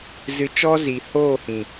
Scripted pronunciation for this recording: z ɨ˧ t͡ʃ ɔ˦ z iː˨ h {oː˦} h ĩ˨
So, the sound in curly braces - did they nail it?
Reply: no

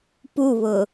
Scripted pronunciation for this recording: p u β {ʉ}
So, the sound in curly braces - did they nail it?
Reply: no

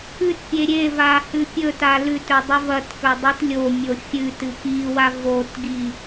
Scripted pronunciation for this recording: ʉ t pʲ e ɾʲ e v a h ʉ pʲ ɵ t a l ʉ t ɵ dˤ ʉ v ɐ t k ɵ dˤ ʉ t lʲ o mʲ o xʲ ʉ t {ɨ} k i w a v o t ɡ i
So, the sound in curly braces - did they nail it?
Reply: yes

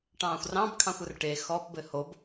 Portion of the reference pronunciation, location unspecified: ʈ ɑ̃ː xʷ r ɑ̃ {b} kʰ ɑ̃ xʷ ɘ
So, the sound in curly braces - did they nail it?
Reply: yes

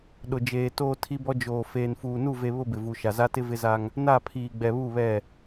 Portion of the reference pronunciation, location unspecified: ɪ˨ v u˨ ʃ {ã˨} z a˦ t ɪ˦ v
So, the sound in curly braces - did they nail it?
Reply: no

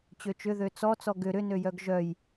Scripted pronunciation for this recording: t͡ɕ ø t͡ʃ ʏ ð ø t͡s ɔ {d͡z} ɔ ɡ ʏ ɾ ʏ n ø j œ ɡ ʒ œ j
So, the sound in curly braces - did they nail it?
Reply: no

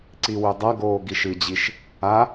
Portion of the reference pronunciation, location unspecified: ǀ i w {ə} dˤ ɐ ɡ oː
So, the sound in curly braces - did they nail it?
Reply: no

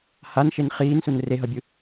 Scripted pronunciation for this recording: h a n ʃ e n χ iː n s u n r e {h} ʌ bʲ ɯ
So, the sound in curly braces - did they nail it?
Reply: no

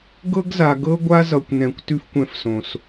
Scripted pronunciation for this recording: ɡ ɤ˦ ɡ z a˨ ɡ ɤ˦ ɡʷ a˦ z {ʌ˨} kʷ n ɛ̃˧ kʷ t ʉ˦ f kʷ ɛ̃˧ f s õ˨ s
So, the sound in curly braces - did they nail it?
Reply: yes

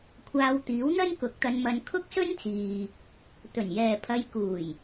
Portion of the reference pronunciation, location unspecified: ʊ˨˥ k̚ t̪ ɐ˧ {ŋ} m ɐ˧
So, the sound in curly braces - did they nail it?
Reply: no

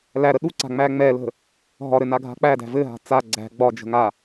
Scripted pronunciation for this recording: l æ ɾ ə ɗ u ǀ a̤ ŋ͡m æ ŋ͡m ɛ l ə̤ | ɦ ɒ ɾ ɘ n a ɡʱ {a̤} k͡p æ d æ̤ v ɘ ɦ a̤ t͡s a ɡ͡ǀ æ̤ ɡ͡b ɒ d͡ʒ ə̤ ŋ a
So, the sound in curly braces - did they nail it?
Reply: yes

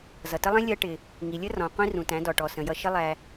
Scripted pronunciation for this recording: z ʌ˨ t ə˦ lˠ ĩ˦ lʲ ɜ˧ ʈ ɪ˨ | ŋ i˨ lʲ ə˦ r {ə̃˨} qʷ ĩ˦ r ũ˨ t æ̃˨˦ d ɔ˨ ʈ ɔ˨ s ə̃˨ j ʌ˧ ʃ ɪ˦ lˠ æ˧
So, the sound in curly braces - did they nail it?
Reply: no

